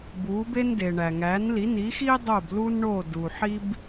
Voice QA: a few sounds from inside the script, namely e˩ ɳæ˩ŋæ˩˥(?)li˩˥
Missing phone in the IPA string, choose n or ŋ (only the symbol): n